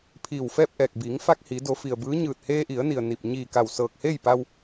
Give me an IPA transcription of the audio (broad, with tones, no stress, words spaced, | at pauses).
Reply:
pʰiː˧˩wfɛː˥˨p̚ʔɛː˧˩k̚ biː˩˧ŋfa˧k̚ hi˩˧do˩˧fi˩ə̯ bɯː˧˥ɲɯː˧˩t̚ heː˧ʔi˩˧ə̯ni˩ə̯ ni˧˩p̚ ɲiː˧˩ka˧˩w sɤː˧˩k̚heː˥˨jpa˧w